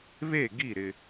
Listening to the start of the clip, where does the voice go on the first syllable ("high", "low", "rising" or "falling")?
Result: falling